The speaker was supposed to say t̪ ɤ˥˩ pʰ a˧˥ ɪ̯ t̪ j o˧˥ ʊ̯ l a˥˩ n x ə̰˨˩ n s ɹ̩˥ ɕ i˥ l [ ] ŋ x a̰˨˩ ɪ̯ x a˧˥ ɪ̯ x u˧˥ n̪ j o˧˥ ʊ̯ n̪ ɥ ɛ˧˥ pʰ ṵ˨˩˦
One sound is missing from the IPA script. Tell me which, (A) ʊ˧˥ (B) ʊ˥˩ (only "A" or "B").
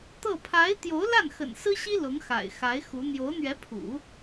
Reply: A